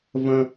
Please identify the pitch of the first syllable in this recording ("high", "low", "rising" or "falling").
high